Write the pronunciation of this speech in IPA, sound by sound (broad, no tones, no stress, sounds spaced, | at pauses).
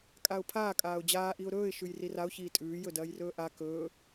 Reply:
kʼ a ʊ̯ pʰ aː kʼ aː ʊ̯ d͡ʑ aː ʔ i ʊ̯ ɾ ɵː ɪ̯ ʃ ʉ j r i r a ʊ̯ ç iː tʼ ʉː j ɵ d ɐː j r ɵː ʔ a k ɵː